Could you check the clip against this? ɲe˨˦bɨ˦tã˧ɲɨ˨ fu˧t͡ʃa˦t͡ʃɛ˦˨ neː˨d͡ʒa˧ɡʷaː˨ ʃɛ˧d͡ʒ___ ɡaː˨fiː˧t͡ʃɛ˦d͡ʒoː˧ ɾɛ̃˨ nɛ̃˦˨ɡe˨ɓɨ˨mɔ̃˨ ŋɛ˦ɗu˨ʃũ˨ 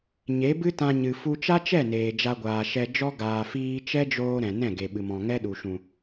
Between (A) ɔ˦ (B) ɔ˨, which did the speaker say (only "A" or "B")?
A